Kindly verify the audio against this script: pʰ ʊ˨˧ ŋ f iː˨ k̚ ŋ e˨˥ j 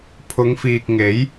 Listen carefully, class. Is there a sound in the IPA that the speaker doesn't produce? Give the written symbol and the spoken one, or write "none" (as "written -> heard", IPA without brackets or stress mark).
none